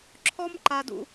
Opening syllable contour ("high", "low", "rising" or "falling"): high